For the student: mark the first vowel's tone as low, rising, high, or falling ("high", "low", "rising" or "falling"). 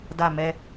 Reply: falling